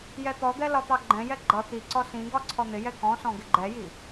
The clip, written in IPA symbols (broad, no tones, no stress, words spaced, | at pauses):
jɛt̪ɔd̪ɛ lɒt̪ɑɡ͡ǃɛ̃jɛ ɡ͡ǃʌ t̪iǀɔ sĩɡɒ ǀʰɔn̪ɪjɛ kɔ̃sɔ̃ ɡɪɡ͡ǃɛji